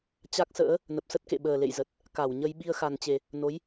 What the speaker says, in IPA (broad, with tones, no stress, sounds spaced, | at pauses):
t͡ɕ a˦˥ k̚ s ə̰ː˧˥ | n ə˨˩ p̚ s ə˦˥ t̚ k ḛ˧˨ ɓ əː˨˩ l ḛ˧˨ j z ə˨˩ t̚ | k a˧˩ w ɲ ə˧ j ɓ i˧ ə̯ x a˨˩ n t͡ɕ e˨˩ | n o˨˦ j